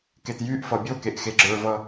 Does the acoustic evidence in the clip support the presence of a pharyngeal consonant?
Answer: no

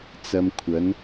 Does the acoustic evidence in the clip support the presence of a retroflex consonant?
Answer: no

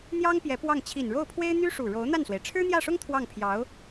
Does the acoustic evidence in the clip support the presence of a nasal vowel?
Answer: no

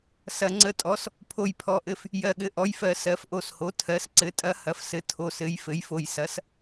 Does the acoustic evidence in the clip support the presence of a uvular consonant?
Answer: no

